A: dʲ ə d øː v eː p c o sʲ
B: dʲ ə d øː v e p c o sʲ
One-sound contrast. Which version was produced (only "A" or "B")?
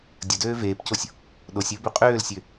A